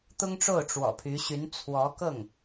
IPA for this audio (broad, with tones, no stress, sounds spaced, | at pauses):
t̪ ʊ˥ ŋ ʈ͡ʂ o˥˩ ʊ̯ ʈ͡ʂ w ɔ̰˨˩ pʰ y˧˥ ɕ y˧˥ n t͡sʰ w ɔ˧˥ k ɤ˥˩ ŋ